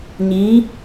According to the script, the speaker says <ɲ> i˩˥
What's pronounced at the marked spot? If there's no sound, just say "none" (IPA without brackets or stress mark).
ɲ